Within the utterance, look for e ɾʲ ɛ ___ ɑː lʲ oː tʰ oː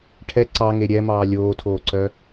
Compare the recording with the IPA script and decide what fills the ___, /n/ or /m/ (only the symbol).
m